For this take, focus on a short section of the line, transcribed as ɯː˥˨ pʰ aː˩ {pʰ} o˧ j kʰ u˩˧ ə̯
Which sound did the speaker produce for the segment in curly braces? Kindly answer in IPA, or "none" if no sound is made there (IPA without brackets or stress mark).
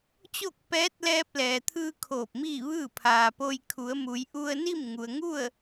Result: p